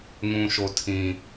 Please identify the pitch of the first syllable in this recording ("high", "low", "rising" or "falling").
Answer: low